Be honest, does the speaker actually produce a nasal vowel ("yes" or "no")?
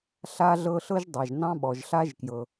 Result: yes